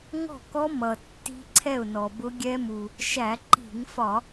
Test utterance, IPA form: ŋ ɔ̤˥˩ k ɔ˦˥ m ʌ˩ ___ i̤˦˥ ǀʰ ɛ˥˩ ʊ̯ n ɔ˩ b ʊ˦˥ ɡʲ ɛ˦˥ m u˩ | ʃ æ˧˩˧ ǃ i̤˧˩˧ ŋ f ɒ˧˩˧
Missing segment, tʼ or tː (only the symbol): tː